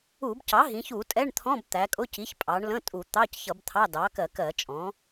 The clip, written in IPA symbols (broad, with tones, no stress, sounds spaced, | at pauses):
u˧˩˧ b c ɑ˩˥ ɦ ĩ˩˧ ç u˧˩˧ tʼ ɛ˧˥˧ ɳ t̪ʰ ɔ̃˧˥˧ b t̪ æ˩˧ kʼ ʊ˧˥˧ c i˩˥ ç pʼ ɑ˩˧ ɳ l ə̃˧˥˧ tʼ u˧˩˧ t̪ ɑ˧˥˧ c ç ʌ˧˩˧ b t̪ʰ ɑ˧˥˧ d ɑ˩˥ k ɜ˧˩˧ k ɜ˧˩˧ t͡ʃʼ ɔ̃˩˥